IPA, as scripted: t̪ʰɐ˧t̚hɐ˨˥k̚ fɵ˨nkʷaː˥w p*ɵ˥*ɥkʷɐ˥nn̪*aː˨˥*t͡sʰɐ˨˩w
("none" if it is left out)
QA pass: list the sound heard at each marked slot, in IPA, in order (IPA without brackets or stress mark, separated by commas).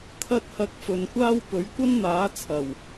ɵ˨˥, aː˨˥